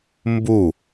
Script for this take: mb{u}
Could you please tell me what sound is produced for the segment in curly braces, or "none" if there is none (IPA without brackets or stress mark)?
u